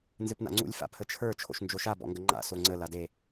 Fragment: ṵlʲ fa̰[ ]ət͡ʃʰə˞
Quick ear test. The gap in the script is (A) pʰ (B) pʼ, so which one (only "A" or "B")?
A